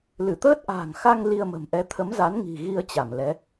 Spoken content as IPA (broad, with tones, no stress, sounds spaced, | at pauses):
l ɨ˧˩ t̪ əː˦˥ t̚ ʔ a̤ː˨˩ ŋ x a˧ ŋ l i˧ ə̯ m ə̤˨˩ m ʔ ɛ˨˦ t̪ʰ ə˨˦ m z a˨˦ n ŋ i̤˨˩ ɣ i˧ ə̯ t͡ɕ a˧˩ m l ɛ˨˦